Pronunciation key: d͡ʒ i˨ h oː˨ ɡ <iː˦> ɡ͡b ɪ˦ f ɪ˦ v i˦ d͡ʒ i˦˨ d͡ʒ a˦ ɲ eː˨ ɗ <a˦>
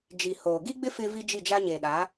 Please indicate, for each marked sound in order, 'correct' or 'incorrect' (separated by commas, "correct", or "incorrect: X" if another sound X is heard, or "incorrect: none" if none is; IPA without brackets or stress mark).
incorrect: i˦, incorrect: a˨˦